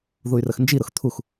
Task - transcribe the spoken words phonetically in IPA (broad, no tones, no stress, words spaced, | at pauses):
ðuy̯rəxnd͡ʒiɾʊx t̪ʰux